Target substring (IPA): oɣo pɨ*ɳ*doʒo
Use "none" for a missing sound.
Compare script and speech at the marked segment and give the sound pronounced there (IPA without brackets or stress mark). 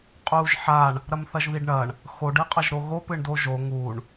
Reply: ɳ